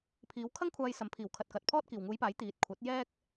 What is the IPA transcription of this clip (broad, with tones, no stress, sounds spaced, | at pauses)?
pʰ iː˨˧ w kʰ ɐ˥ ŋ kʷʰ aː˧ j s ɐ˨˥ m pʰ iː˨˩ w kʰ ɐ˨ t̚ k ɐ˨ t̚ pʰ ɔː˥ t̚ k iː˨˩ w ŋ uː˨˧ j p aː˨˥ j t̪ iː˨ t̚ kʷʰ ɐ˨˥ t̚ j ɛː˥ k̚